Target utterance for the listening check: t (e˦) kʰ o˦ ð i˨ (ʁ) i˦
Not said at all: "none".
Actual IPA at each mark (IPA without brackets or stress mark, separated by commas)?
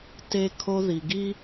e˦, ɡ